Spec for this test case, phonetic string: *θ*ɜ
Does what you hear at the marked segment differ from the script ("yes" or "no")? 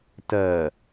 yes